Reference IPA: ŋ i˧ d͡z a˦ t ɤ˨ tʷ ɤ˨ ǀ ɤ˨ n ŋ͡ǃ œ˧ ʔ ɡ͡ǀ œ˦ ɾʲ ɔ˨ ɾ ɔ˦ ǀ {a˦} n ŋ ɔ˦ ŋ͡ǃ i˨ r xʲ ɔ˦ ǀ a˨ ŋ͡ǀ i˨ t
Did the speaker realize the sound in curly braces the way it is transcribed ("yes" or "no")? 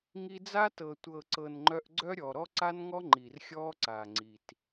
yes